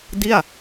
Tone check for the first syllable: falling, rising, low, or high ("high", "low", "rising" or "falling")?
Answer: falling